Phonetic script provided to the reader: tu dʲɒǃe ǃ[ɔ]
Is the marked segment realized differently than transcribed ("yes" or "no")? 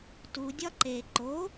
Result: yes